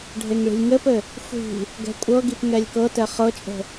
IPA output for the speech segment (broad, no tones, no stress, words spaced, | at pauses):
ɖʱeŋɭi̤lʲŋɘpɘ | xʷi̤ | ɡɛ̤kʷʼɤɡip ŋɛlʲkɤtɛ χɤt͡ʃʼə̤